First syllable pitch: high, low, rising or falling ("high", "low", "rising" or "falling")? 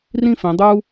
falling